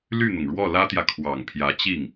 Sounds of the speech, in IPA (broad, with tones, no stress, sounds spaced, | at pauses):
l y˥˩ n̪ ʊ˩ ŋ ɻ w ɔ˥˩ l ä˥ t̪ j ä˨ kʰ w ɑ˨˩ ŋ pʰ j ä˧˥ t͡ɕ i˥˩ ŋ